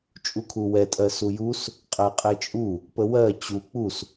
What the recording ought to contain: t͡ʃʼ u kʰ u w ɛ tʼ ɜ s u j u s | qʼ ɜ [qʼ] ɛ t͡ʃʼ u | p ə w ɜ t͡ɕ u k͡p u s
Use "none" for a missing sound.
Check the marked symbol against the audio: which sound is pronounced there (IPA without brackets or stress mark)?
qʼ